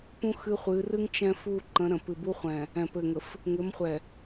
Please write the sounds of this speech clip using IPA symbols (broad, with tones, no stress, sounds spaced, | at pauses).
p ũ˦ x ɨ˦ χʷ ɨ˨˦ r ɨ˦ ŋ t͡ʃ ɛ̃˦ f u˦˨ ǃ ə̃˨˦ ɾ ə̃˨ p ɨ˨ b u˦ χʷ ɛ̃˨ | ɛ̃˨ p ɘ˨ ŋ ə˨ f | ŋ ɘ˨˦ m χʷ ɛ˨